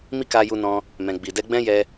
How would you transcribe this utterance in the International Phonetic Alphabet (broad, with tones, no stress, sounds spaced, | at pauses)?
m i˦ k a˧ j u˧ n ɔ̃˧ | m ɛ̃˨ ɡ͡b i˨ d ɛ˧ ɡ͡b ɛ̃˦ j ɛ˧